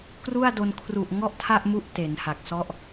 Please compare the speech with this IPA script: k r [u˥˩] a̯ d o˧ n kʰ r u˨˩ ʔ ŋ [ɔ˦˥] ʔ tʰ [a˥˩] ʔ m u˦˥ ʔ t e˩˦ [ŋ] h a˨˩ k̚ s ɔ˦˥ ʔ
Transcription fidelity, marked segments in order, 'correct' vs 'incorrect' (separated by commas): correct, incorrect, correct, incorrect